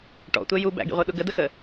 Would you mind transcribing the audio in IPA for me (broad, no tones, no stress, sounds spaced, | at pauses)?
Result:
ʈ ɔ̰ tʷ ɛ j u b æ̰ ɡ ḭ ʁʷ ɜ ɗ ʊ ɡ ə d ə x ə